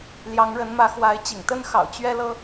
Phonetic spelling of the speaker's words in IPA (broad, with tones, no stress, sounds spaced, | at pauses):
l j ɑ˨˦ ŋ ɻ ə˨˦ n m ä˨˦ x w a˨˦ ɪ̯ t͡ɕ ḭ˨˩ ŋ t̪ ə˦ n x ɑ̰˨˩ ʊ̯ t͡ɕ ɥ ɛ˦ l ɤ˦